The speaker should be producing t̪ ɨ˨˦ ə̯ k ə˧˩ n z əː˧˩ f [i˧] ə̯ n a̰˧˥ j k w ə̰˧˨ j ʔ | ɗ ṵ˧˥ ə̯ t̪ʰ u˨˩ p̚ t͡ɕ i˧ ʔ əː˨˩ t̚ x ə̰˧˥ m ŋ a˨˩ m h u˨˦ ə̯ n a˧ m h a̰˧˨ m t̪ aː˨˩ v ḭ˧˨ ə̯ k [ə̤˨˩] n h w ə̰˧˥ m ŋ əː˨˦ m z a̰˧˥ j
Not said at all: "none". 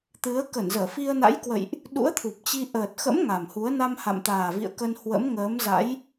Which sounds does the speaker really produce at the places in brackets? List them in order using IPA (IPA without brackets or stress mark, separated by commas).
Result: i˧, ə˧